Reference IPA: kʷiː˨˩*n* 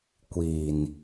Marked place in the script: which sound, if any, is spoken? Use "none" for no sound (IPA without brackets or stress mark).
n